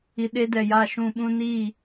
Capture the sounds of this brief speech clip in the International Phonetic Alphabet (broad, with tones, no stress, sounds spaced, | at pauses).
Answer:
i˨ ɗ e˦ d ɛ˨ j a˨ ʃ ũ˨ ɓ ũ˦ n iː˦˨